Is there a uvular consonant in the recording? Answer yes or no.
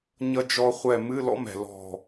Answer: yes